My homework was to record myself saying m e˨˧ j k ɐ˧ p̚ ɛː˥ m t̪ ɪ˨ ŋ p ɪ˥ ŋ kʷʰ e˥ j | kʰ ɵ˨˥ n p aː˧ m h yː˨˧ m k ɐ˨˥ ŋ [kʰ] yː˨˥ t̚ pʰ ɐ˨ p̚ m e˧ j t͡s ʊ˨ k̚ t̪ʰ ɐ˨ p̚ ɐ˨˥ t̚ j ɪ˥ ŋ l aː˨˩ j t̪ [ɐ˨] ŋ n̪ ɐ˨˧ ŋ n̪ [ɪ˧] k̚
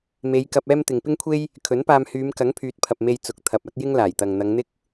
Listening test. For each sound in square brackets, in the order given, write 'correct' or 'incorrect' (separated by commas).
incorrect, correct, incorrect